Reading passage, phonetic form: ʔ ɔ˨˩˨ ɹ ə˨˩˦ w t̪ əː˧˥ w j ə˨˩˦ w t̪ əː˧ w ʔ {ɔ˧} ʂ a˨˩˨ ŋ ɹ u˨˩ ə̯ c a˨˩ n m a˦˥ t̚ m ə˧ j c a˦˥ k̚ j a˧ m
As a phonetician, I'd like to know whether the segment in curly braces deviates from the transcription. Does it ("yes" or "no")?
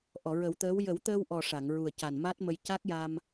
yes